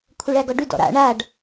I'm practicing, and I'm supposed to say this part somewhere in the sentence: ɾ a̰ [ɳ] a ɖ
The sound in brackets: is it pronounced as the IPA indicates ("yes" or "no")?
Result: yes